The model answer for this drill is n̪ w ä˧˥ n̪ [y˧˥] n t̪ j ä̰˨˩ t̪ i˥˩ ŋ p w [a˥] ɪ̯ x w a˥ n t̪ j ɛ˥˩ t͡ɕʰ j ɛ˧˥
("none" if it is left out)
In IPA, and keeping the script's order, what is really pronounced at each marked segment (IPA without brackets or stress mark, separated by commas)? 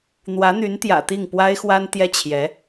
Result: y˧˥, a˥